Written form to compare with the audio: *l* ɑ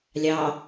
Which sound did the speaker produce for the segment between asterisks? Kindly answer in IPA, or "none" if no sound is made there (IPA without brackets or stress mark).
lʲ